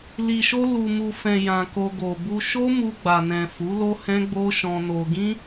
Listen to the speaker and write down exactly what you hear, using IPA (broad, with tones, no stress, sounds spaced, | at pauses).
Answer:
l i˨ ʃ o˧ l u˨ m u˨ f ɛ̃˨ j ã˨ k o˧ ɡ o˨ b u˧ ʃ o˦ m u˧ ɡ͡b a˨ n ɛ̃˨ f u˨˦ l o˦ h ɛ̃˦ ɡ͡b o˦ ʃ ɔ̃˧ n o˧ ɡ ĩ˦